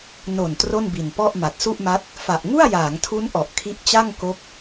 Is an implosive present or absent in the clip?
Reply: absent